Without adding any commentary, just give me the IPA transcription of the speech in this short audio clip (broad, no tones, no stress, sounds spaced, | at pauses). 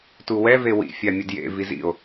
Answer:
t u w ɛ v e w ḭ fʲ a mʲ ə d j ḛ v i z ḭ o̯